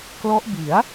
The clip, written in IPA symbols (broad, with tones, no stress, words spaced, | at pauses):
klɔ˦˥ʔ bi˩˦a̯